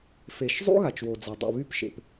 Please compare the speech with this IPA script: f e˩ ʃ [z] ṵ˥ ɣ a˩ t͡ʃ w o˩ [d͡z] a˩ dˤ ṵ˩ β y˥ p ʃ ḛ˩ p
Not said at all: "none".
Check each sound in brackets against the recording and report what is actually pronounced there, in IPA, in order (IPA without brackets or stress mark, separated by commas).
zˤ, d͡z